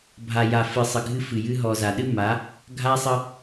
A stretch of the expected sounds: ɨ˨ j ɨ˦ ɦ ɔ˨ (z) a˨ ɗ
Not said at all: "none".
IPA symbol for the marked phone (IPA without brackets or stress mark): z